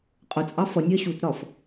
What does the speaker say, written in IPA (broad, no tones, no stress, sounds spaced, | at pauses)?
qʼ ʊ t͡sʼ ɑ f ʌ nʲ ɜ ɕ u t ɾ ɒ f